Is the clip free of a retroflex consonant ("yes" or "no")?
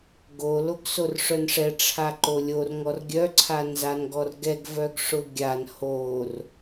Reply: no